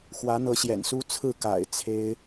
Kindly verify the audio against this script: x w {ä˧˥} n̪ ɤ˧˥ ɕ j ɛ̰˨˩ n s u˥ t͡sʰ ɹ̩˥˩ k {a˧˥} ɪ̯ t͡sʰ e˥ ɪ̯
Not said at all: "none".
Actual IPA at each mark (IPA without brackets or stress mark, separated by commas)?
ä˧˥, a̰˨˩